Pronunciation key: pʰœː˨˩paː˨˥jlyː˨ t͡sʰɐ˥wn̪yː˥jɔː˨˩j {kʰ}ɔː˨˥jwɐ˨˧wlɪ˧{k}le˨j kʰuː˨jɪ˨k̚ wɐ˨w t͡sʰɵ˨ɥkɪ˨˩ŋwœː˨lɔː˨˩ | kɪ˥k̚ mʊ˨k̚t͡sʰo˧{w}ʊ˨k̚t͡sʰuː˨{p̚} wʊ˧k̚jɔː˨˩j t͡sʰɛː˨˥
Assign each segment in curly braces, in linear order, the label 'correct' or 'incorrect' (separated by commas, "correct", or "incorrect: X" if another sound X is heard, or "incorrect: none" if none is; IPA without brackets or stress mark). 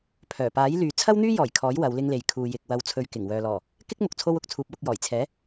correct, incorrect: ŋ, correct, correct